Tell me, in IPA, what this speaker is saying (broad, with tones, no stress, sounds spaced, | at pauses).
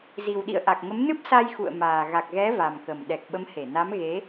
z i˨˩ w ɗ ḭ˧˨ ə̯ ʔ a˨˩ k̚ ŋ ə˨˦ m n ɨ˦˥ p̚ s a˧ j x ṵ˧˨ ə̯ m aː˨˩ ɣ a˨˩ k̚ ɣ ɛ˨˦ v a˨˩ m k ə˨˩ m ɗ ɛ˨˩ k̚ ɓ ə˨˦ m h e˧˩ n a˨˦ m ɣ e˨˦